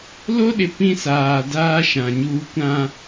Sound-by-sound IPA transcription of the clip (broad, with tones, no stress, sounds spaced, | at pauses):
l o˦ ɗ ɪ˨ p ĩ˦ s aː˨ d aː˦ ʃ ã˨ ɲ uː˦ kʷ ã˦